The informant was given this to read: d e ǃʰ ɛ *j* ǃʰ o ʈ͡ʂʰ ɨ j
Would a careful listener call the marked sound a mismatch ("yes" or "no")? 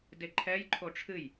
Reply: no